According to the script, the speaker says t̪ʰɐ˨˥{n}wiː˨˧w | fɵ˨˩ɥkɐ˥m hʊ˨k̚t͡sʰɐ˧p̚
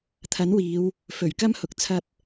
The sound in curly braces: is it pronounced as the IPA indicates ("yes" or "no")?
yes